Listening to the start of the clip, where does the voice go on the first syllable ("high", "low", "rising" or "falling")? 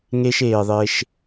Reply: high